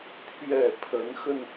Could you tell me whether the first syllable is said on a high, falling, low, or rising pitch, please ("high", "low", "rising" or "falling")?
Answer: low